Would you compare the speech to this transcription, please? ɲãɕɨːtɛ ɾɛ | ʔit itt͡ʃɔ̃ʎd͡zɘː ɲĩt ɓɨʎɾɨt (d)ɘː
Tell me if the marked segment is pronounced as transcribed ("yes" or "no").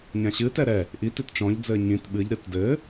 yes